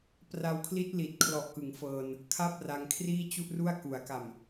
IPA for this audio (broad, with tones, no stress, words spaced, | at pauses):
pra˧wkʰli˦˥t̚ li˨˩t̚kʰlɔ˨˩ʔkɯ˩˦ŋ fɤː˧n | kʰa˦˥p̚ ra˧ŋkʰriː˥˩ t͡ɕu˥˩ʔru˥˩a̯ ku˩˦a̯ka˨˩m